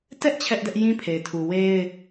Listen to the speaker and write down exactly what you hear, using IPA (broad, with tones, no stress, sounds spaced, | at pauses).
t ɛ˦ ʔ t͡ɕʰ ɛ˦ ʔ d ɛ˦ ʔ j ĩ˦ pʰ e˨ ɪ̯ tʰ u˨ w e˦ ɪ̯